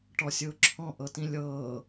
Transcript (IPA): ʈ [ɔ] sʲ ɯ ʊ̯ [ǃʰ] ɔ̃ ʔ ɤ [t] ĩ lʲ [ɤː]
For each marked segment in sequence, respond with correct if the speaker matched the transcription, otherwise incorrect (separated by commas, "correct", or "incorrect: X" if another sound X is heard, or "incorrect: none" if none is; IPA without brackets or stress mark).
correct, incorrect: ǁʰ, correct, correct